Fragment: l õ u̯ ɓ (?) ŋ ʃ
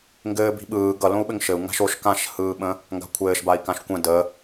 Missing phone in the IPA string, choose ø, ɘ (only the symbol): ɘ